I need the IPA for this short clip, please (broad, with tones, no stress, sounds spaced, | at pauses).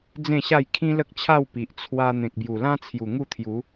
d͡z ẽ˥˧ ɕ a˥˧ j kʰ ĩ˦ l ə˦ k̚ t͡ɕʰ a˥˧ w p i˨ ʔ t͡sʰ w a˧ n̪ ẽ˨ k̚ b j u˨˩ l ã˦ t͡sʰ j u˨˩ ŋ u˥˧ t̪ʰ j u˨˦